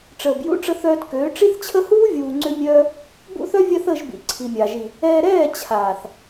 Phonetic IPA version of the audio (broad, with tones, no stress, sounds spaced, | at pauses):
ʈ͡ʂ əː˨ b j ṵ˦ ʈ͡ʂ ə˧ θ œː˧ t k øː˨˦ ʈ͡ʂ i˦ θ t͡ɕʰ ə˦ h uː˦ vʲ uː˨ ŋ͡ǀ ʏ˦ mʲ œː˦ | b ṵ˦ θ œ˦ vʲ a˦ θ əː˧ ʒ b ḭ˨ ǀʰ i˨ mʲ a˨ ʒ i˨ | ɛː˧ ɾ ɛː˦˨ t͡ɕʰ aː˨ θ